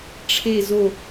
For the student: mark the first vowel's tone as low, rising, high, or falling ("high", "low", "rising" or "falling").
falling